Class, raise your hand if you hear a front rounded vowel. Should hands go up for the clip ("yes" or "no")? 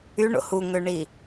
yes